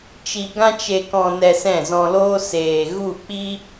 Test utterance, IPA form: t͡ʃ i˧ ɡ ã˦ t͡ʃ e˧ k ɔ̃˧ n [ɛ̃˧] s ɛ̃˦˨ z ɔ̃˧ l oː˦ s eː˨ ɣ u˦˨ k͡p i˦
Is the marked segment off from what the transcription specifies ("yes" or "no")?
yes